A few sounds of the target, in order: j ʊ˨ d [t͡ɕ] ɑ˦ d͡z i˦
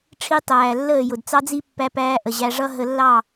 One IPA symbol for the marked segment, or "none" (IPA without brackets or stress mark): t͡s